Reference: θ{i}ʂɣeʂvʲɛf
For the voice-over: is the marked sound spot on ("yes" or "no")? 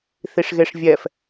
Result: yes